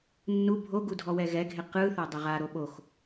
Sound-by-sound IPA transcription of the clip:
nː u bʱ o ɡ u dʱ ɔ w ɛ ɣ ɛ ɡʱ e q ɯ θ a dˤ e ʁ a ɾ o ɓ o x

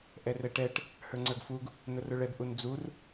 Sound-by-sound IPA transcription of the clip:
ʔ ɛ r ɛ ʈ ɛ ʈ | h ə˞ ŋ͡ǀ ə˞ ɡ f u ɡ | n ʊ r ʊ ɭ ɛ b ʔ u n d͡z u r

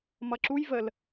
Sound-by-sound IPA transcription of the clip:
m ʌ ǁ u j v ə l

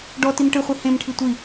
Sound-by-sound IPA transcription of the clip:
ɖ ɔ t i m ʈ ɨ χʷ i h ẽ m ʈʰ i tʷ i

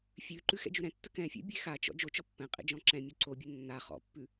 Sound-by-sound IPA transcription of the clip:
fʲ ʉ ǃ ʉ x ɛ̰ d͡ʒ ʉ ɾ ɛ̃ tː ə k ɛ̃ fʲ ɛ̰ bʲ e x a t͡ʃ ɔ̰ d͡ʒ o t͡ʃ ɔ pː ɛ̃ qʼ ḛ d͡ʒ ɔ̃ ǁ ɛ̃ mʲ o ǀ o bʲ ə nː a χ ɔ̰ pː ʉ

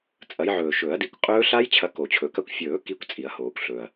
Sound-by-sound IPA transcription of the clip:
t͡sʼ ɐ˨˦ j ʕ ɵː˨˩ ʃ ɵ˨˩˦ ɐ̯ d i˨˦ kʷ qʼ ɵː˦˥ ɬ a˦˥ j t͡ɕʰ ɐ˨˦ k o˨˩˦ t͡ɕʰ ɵ˨˩˦ k ɐ˦˥ kʷ fʲ ɵː˨˩˦ k i˨˦ kʷ t͡sʼ i˨˩˦ ɐ̯ h oː˨˩˦ kʷ ɬ ɵː˨˩ ɐ̯

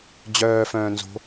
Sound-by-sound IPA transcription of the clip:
d͡ʑ œː f œ̃ː n z o̤

